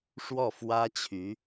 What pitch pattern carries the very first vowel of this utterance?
falling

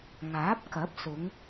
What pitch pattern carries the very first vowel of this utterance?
rising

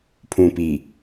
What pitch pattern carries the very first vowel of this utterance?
low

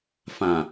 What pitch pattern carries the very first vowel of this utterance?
low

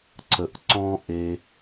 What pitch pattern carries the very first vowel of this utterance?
low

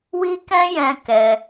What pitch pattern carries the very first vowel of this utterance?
high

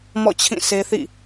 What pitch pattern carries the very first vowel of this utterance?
falling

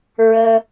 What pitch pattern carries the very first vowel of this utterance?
low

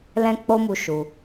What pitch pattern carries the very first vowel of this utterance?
high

